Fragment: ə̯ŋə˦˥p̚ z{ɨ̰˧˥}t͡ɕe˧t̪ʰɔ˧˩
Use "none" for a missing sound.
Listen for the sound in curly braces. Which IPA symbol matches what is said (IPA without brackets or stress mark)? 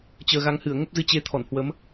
ɨ˧